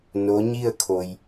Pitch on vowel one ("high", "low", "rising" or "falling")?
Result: rising